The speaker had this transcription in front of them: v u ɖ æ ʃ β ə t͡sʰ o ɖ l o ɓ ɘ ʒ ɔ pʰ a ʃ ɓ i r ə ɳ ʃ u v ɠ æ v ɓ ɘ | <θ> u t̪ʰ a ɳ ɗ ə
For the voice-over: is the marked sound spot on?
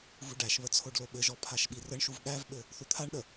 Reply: yes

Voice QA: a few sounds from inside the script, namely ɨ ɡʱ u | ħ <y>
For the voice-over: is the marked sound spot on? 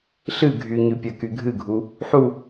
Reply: no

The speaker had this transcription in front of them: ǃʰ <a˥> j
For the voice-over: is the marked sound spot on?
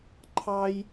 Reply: no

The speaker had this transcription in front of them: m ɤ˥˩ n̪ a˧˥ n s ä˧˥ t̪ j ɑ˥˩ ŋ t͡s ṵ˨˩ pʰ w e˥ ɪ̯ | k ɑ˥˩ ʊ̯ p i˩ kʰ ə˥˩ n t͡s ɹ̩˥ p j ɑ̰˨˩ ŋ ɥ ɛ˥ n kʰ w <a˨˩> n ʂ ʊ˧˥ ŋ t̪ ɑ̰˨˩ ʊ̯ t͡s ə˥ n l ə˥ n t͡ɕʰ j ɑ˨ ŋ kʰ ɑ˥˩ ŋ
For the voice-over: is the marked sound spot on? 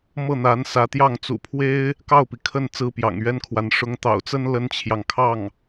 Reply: no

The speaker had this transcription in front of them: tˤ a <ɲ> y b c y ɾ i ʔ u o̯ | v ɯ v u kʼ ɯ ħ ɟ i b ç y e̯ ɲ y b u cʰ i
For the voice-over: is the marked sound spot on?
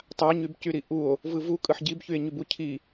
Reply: yes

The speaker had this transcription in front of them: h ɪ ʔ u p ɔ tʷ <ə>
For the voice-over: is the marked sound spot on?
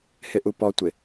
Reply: no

